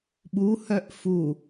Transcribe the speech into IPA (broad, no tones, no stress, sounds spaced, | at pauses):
ɓ u h œ ʔ f u